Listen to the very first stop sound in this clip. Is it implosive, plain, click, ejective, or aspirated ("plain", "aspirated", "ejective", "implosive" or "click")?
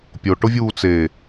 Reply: plain